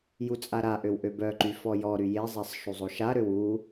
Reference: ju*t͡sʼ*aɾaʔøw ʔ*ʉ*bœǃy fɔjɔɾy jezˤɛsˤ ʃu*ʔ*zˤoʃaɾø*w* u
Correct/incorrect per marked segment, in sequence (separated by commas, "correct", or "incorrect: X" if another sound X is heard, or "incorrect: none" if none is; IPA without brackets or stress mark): correct, incorrect: ø, incorrect: none, correct